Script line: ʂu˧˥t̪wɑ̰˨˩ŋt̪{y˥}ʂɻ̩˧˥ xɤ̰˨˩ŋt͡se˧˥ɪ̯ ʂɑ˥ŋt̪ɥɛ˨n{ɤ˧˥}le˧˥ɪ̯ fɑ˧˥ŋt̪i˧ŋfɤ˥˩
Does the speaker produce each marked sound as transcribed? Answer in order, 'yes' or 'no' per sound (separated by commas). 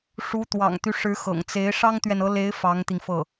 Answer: no, yes